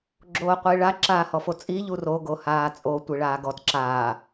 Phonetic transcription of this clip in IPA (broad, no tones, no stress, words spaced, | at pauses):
ɡ͡ǁoːqʷiːɭa ǁaːhɔfot͡sʼi ʎuro ɡohaːt͡sʼo tʷiɭaːɡɔt ǁaː